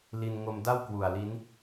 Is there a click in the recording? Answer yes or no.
no